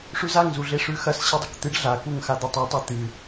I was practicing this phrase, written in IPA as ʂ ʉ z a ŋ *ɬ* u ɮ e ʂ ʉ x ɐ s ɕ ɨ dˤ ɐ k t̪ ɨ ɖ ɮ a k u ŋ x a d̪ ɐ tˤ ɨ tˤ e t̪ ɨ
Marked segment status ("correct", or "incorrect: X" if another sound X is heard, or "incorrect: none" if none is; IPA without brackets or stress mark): incorrect: z